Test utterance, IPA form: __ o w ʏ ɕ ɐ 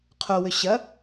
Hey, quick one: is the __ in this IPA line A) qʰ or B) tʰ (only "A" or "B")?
A